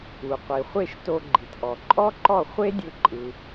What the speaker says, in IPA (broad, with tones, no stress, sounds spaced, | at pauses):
u˩ qʷ i˩ χʷ e˥˩ ʃ t o˧ ɡ͡ǃ i˩ t ʔ ɔ˩ ǃʼ ɔ˥ ǃ ɔ˥˩ χʷ e˥ dʲ ɯ˧ ǃʼ ɯ˩